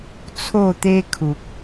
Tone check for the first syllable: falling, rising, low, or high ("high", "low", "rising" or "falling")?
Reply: falling